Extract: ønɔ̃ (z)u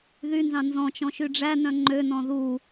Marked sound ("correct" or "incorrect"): incorrect